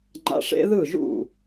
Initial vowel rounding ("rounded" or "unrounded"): unrounded